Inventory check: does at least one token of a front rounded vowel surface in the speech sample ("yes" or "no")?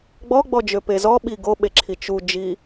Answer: yes